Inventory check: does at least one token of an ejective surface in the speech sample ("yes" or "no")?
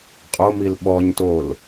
yes